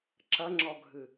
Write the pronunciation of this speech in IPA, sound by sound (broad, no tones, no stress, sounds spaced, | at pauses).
ǁ ɐ ŋ͡ǁ ɔ ɡʱ ɨ